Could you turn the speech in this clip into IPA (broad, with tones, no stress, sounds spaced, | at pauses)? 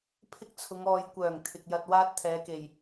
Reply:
pʰ ɪ˥ k̚ t͡sʰ ʊ˨˧ ŋ ɔː˨ j kʷ œː˨˩ ŋ t̪ʰ ɪ˨ k̚ j ɐ˧ t̚ w aː˥ t̚ t̪ʰ ɛː˨˧ k e˨˩ j